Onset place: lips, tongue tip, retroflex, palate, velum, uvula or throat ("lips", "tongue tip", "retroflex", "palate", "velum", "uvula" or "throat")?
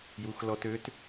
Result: palate